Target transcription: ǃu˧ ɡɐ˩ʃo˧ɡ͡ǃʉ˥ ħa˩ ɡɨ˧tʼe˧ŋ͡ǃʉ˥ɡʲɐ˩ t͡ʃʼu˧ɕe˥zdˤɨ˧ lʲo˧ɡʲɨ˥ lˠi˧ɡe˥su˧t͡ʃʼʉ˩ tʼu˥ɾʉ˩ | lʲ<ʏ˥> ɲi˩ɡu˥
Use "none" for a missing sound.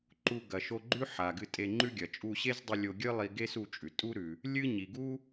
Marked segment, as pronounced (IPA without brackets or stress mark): ɨ˥